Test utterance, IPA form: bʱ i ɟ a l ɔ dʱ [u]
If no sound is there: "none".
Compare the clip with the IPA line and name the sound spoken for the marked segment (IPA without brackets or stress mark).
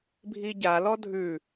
ʉ